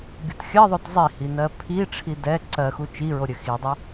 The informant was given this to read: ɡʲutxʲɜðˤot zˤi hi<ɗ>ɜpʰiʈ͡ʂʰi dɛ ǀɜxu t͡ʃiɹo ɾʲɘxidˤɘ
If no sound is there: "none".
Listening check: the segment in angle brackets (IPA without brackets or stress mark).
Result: n